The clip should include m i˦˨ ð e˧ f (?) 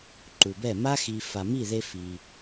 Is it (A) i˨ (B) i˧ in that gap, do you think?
B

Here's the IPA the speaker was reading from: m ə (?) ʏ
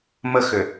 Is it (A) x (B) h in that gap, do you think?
A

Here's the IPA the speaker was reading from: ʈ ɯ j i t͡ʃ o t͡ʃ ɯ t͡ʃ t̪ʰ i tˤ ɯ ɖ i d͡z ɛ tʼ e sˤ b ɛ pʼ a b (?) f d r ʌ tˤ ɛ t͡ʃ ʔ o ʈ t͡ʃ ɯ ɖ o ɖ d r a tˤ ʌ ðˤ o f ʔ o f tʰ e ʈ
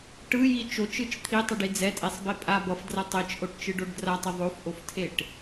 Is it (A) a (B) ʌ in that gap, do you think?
B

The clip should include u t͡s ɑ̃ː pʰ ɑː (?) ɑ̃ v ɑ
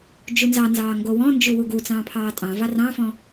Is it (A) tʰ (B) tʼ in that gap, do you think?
B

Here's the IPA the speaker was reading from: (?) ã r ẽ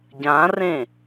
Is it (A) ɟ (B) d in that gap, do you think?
A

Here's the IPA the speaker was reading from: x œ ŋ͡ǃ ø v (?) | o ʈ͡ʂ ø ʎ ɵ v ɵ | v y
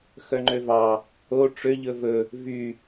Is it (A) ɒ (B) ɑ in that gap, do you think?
B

